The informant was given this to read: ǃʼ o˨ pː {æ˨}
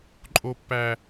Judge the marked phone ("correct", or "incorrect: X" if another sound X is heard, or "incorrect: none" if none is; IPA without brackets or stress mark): correct